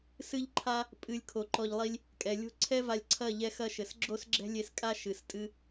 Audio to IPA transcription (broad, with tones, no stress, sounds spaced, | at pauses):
s ɨ˦ ʎ ǃʰ a˦ | pʼ ɨ˧ lʲ kʰ o˨ ǃ ɔ˧ ʎ lˠ i˦ lʲ | kʼ ɛ˨ lʲ o̤˦ ǀʰ ɛ˦ v a˧ lʲ ǀʰ ɐ˦˨ ʎ ɛ˦ x ɐ˦ ʃ ɘ˨ s ɡ͡ǁ o˦ s ɡ͡ǁ ɛ̤˦ lʲ e˧ s kʼ a˦ ʃ ɨ˨ s tʼ ɨ˦